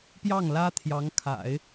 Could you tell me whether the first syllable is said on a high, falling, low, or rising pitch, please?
falling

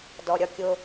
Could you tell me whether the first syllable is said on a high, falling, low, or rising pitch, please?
low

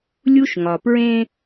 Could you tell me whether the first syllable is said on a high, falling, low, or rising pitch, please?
high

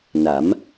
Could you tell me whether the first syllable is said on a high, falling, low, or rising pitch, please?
rising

